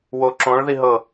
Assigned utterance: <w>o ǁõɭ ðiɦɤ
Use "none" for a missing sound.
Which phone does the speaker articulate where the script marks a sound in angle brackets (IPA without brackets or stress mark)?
w